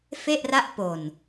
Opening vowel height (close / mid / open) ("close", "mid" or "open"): mid